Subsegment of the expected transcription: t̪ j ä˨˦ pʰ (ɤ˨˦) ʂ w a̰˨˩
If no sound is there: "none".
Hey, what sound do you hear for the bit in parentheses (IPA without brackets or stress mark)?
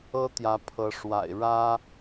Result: ɤ˨˦